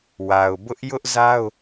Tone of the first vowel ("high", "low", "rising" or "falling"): low